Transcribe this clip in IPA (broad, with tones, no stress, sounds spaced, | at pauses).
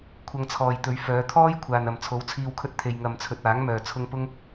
kʷʰ ɐ˧ ŋ t͡sʰ ɔː˨ j t̪ ɵ˨˧ ɥ f œː˨˧ t̪ʰ ɔː˥ j kʷʰ aː˨ n ɐ˨ m t͡sʰ o˨˥ w t͡sʰ iː˧ w kʰ ɵ˥ t̚ t̪ʰ e˨ j ŋ ɐ˨ m t͡sʰ ɵ˨ t̚ aː˨˥ ŋ m œː˨ t͡sʰ ʊ˧ ŋ p ʊ˥ ŋ